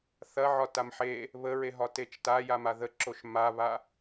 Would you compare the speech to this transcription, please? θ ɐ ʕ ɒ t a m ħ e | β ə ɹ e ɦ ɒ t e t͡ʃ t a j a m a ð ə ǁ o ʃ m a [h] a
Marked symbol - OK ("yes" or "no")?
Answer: no